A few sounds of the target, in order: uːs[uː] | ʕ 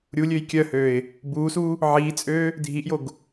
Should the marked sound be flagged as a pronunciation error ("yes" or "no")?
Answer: no